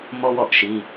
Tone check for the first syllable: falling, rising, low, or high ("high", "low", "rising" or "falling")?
high